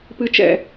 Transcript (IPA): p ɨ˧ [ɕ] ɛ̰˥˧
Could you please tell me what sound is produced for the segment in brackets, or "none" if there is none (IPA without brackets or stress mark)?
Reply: t͡ʃ